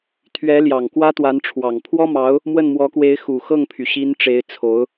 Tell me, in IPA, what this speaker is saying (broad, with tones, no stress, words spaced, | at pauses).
t̪ʰɥɛ˧˥ljɑ˨˩ŋ kwä˥t̪wa˧˥nʈ͡ʂʰwɑ˨˩ŋ pʰwɔ˥mɑ˧˥ʊ̯ | mwə˥˩nmwɔ˧˥kwe˧˥ɪ̯ xu˨˩ xɤ˥˩ŋpʰy˩ɕi˧˥n ʈ͡ʂe˧˥ɪ̯t͡sʰo˧˥ʊ̯